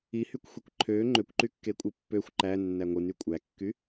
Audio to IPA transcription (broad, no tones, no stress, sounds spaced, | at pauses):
i h y kʷ xʷ e kʷ ǃʰ ø ŋ͡ǃ ø kʷ ǃ y kː e kʷʼ ɯ pː ø xʷ ǃ æ nː æ ŋʷ ɯ n y kʷʼ æ kː y